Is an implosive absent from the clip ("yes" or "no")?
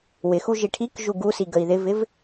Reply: yes